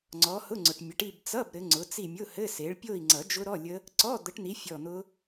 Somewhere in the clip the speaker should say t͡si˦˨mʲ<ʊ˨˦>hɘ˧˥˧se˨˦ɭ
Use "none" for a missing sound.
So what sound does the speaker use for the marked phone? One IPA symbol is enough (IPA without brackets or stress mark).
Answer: ʊ˧˥˧